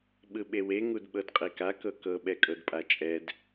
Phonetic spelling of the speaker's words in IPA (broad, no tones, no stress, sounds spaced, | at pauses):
ɓ ɯ ɓ e w e ŋ u d ɓ ɤ d qʼ e k a k ɤ k ɤ ɓ ɛ kʼ ɤ d pʼ a t͡ʃʼ ɛ d